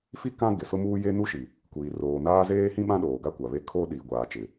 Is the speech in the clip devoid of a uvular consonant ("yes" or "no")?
yes